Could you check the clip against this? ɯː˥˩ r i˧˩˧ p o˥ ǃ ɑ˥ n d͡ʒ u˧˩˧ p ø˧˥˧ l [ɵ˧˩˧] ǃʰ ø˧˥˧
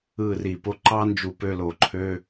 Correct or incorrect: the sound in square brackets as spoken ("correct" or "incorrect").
incorrect